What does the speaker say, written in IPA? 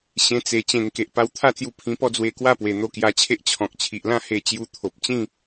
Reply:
ɕ ẽ˧ t͡s e˨˩ t͡ɕ ẽ˨˩ ŋ k e˨ ʔ p a˧ w t̪ʰ a˥˧ t͡s j u˧ pʰ ĩ˧ p ɔ˥˧ d͡z w e˧ k w a˥˧ p w e˨˩ n̪ o˧ k j a˧ t͡ɕʰ e˦ ʔ t͡ɕʰ ɔ̃˨ k̚ t͡ɕʰ i˨ ʔ l ã˥˧ h e˧ t͡ɕ j u˧ t̪ʰ o˨ p̚ t͡ɕ ĩ˥˧

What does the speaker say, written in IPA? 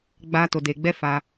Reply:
ɡ͡b aː˦ t o˧ d eː˧ ɡ͡b ɛ˦ f aː˧

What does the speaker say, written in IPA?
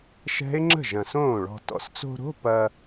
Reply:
ʃ ɛ̤˦˥ ɪ̯ ŋ͡ǁ ə̤˥˩ ʒ ɐ̃˨˩ s õː˥˩ ɭ ɔ̤˧ t ɔ̰˨˩ s t͡s o̤˧ ɾ o̤˧˥˧ p ɐ˧

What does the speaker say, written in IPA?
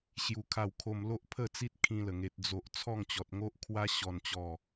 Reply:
ɕ j u˧ kʰ a˥˧ w kʰ o˧ m l o˦ ʔ pʰ ə˥˧ t͡s i˦ t̚ kʰ ĩ˧ l ə˨˩ ŋ e˨ t̚ d͡z o˨ ʔ t͡sʰ ɔ˥˧ ŋ t͡ɕ ɔ˨ t̚ ŋ o˦ ʔ kʰ w a˦ ɕ ɔ˨˩ n t͡ɕ ɔ˨˩

